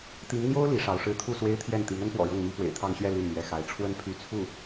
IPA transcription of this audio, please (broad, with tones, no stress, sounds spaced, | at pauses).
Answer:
t̪ i˧˥ ŋ n̪ j o˥ ʊ̯ l i˧˥ ʂ ɑ˧˥ ʊ̯ ʂ ɻ̩˥˧ t̪ʰ u˥˩ s w e˥ ɪ̯ t̪ʰ j ɛ˥˩ n t̪ i˧˥ ŋ ə˥ n p w ɔ̰˨˩ ɻ ɤ˥˩ ŋ m i˥ f w ḛ˨˩ ɪ̯ t̪ʰ ɑ˥˧ ŋ ɕ ɥ ɛ˥˧ l i˥˩ n m ɥ ɛ˧˥ x a˧˥ ɪ̯ ʈ͡ʂʰ w ə˥ n pʰ y˧˥ t͡sʰ u˥˩